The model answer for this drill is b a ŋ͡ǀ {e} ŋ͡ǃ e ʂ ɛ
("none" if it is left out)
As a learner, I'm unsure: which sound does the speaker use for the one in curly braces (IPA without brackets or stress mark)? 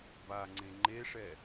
ẽ